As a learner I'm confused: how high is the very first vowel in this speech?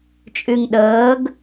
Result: high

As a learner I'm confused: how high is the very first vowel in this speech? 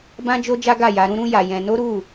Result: low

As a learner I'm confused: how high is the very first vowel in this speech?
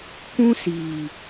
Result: high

